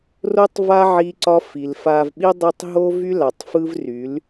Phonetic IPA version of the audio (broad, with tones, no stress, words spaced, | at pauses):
ro˦tˤva˦ ʕi˦ǀɒ˦ fi˨lfa˧vɓi˦ dˤɯ˦tˤ ɦo˦vy˦la˨tˤ fɯ˦vry˨˦l